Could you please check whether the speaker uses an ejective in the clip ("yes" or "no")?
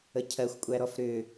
yes